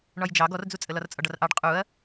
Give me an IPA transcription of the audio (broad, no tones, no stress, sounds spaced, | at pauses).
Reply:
ɳ ɒ j d͡ʒ ɑ ɡ ɔ r d͡z u t͡sʼ ə l ɒ r t͡sʼ ɒ ɖ ɒ r ʔ ɑ ɖ qʼ u ɐ̯